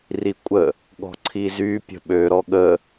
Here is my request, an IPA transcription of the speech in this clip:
rikʷʼə | ɠɔ̤ǀʰizy pʲə̤ɓø ɾɔɠə

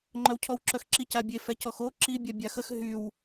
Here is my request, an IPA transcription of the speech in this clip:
ŋ͡ǃœwcʰɔwǁœxǁic abʲe fɛcɔxo ǁi bʲabʲaxəx ɦyw

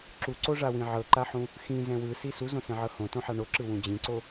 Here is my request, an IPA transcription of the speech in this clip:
ǁuǀoʐawĩ ʕɤǃaħũ | xĩzɛ̃ wɯsi suzõsɛ̃ʕɤ hõtõħa ɳoǁɯwũ d͡ʑĩǀo

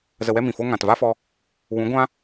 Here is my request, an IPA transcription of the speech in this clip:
zə˧wɛ˦mĩ˨fo˦ ŋã˨tva˦fɔ˧ | wũ˨˦ɡʷã˦

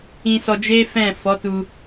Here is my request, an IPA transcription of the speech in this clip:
ĩ˧sɔ˧d͡ʒe˦fɛ̃˦˨ fɔ˨˦tu˧

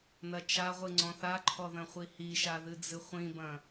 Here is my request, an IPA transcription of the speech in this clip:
nɐt͡ʃaʁʷɨ ŋ͡ǀɔ̃θaǃʰɔ ðɐ̃χʷihiʃa ðɨd͡zɨχʷĩbɐ̃

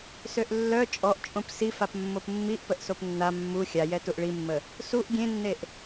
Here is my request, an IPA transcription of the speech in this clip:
søʔlːœ t͡ʃʼɔʔt͡ʃʼõp sifap mːopmːiʔ pəʔsopnːa mːu xʲajɛ tuʔɭimːə | suʔ ɡʲẽnːeʔ

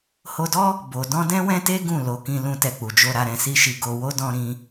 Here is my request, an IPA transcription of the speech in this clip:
ho˧dɔ˦ | bo˨dɔ̃˧ dɛ̃˦wɛ̃˦te˦ ɡũ˦˨ lo˨˦kĩ˧ lũ˧tɛ˧k͡pu˨d͡ʒo˧ ɾa˨ɾɛ̃˨si˧ʃi˨ ɡo˧wo˦ dɔ̃˧ɾĩ˧

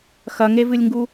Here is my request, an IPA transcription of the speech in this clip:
xɐŋevɨlʲŋɡu

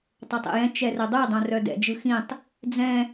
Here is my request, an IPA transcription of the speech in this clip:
tˤɐtˤḛjɛ̃ t͡ʃɛrɛdˤœ dˤœ̃rœdɛ̰ d͡ʒɯxĩtˤ | d͡zɛ̃

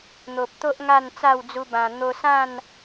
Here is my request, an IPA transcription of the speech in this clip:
n̪o˨p̚t̪o˦ʔ ŋa˥˧nt͡sa˥˧wd͡zu˧bã˨˩ n̪o˧sã˥˧n

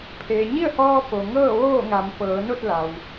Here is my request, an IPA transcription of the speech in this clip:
pʰeː˩ɲi˥˨ə̯hɔː˧ po˩ŋɤː˥˨ ʋoː˥˨ŋa˩˧m pɤː˩˧no˥˨t̚la˩w

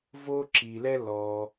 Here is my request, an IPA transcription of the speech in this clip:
vo˥ǁi˩lɛ˥ lɔ˩

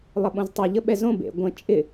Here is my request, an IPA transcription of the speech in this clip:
lˠəɓõztˤœ ʎəɓɛzõ bḛ ɡʷə̃ t͡ʃʼɪ

